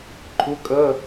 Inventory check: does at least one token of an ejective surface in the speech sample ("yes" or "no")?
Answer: yes